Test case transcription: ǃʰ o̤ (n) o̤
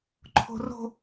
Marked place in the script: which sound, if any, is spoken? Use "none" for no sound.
r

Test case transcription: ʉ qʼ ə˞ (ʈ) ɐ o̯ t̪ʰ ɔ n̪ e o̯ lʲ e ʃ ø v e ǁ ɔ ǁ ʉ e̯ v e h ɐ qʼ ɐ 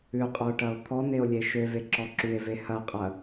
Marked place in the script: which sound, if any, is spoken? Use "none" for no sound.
ʈ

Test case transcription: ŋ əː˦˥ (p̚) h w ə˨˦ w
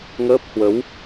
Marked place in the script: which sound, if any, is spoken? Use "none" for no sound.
p̚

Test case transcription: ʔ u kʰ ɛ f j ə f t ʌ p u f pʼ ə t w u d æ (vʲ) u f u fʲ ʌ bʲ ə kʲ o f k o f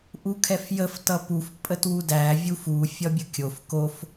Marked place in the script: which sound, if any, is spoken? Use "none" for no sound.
vʲ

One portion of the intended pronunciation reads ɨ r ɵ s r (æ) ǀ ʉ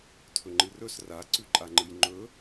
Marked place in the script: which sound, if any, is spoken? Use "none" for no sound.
a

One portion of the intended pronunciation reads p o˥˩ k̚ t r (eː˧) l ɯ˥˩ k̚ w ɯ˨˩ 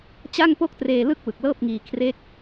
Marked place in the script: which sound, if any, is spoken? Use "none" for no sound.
eː˧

